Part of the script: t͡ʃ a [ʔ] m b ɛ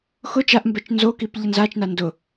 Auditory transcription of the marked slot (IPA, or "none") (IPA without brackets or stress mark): ʔ